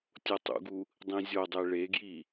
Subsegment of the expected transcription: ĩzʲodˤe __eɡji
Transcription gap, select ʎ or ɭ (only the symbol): ɭ